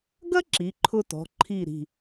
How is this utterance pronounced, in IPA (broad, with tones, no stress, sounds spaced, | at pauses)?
ɡ ɐ˥ ǁ i˩˧˩ ǃʰ ʊ˥ t ɔ̤˩˧˩ ǃʰ i˥˩ ɾ i̤˧˩